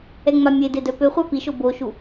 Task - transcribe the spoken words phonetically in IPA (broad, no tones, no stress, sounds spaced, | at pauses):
ɛ ŋ͡m a mʲ e d e d œ p ø χʷ a p i ʃ o b o ʃ u